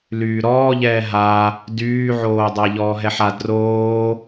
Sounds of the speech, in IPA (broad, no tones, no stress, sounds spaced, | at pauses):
l yː ɾ ɔː ʎ ɛː ɦ a | d yː ʕ oː dˤ a ʎ ɔː ɦ ɛ ħ a d r oː